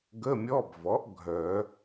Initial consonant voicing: voiced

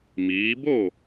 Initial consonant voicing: voiced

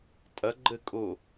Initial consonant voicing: voiceless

